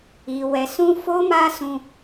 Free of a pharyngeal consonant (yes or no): yes